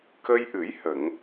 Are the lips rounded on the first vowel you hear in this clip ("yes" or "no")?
no